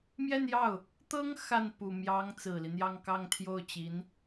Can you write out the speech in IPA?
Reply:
mjɛ˥˧njɑ˥˩ʊ̯ | t̪ɤ˥ŋ xa˥˩n pu˨˩mjɑ˧˥ŋ t͡sɹ̩˨˩li˦n̪jɑ˥˧ŋ kɑ˥˧ŋt̪ʰjo˥˩ʊ̯t͡ɕi˧˥n

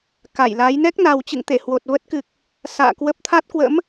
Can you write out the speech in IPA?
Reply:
ka˧˩jla˨˦j nɛ˦˥k̚na˨˩wt͡ɕɨ̰˧˨ŋt̪e˧˩ hwo˨˩t̚ və˦˥t̚kɨ˨˩k̚ | sa̰ː˧˨kwə˦˥p̚ t̪ʰa˦˥t̚kwə̰˧˥m

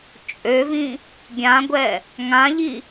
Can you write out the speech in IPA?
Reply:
t͡ʃʼøvĩ | ɡʲãɡʷɛ | ŋãʎi

